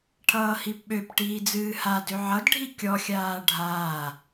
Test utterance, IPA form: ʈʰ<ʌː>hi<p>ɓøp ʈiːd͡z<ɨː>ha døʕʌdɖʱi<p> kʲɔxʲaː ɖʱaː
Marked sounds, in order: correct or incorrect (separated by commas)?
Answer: correct, correct, correct, incorrect